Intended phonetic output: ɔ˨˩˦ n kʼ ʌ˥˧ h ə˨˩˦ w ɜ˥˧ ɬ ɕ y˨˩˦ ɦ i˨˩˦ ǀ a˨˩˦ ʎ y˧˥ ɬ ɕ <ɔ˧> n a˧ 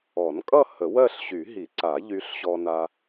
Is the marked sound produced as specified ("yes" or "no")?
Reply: yes